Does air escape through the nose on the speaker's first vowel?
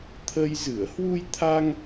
no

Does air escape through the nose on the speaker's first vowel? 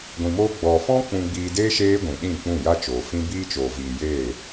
yes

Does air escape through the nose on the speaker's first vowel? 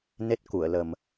no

